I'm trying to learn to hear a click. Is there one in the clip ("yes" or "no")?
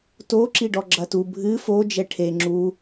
yes